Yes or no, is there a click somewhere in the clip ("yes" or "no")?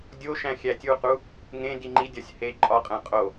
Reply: yes